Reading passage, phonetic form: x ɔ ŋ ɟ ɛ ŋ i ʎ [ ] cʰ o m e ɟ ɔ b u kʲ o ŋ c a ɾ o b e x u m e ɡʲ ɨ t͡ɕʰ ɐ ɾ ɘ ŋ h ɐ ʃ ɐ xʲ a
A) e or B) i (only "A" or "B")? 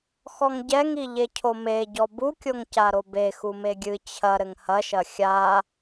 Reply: A